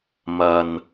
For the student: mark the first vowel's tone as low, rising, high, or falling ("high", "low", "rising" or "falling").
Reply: low